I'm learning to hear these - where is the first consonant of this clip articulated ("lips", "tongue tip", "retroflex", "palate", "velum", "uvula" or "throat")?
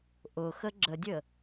throat